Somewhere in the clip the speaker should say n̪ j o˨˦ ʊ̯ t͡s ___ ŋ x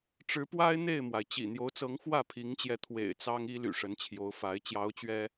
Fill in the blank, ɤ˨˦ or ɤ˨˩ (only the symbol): ɤ˨˦